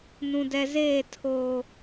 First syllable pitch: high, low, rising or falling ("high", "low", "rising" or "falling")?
low